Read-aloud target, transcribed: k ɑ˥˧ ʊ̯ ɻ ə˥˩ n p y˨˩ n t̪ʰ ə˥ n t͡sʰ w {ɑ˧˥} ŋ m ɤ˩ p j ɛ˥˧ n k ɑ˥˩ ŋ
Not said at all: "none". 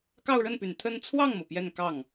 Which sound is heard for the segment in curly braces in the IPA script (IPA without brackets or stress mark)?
ɑ˥˩